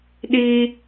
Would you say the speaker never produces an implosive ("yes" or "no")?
no